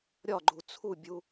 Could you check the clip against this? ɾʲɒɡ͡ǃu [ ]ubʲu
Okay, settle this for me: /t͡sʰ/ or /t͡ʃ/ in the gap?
t͡sʰ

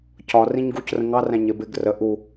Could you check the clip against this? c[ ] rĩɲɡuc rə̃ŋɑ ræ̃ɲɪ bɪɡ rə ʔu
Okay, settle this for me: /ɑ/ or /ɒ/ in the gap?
ɒ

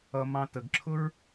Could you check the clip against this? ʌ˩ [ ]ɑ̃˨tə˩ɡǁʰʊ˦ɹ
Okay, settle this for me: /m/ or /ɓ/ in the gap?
m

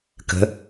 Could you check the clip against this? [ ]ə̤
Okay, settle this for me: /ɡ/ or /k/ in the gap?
k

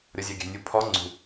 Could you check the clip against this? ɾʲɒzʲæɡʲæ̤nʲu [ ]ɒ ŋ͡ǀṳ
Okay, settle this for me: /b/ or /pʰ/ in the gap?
pʰ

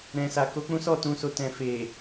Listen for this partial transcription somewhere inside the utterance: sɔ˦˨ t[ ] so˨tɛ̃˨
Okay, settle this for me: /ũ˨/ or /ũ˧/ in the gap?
ũ˧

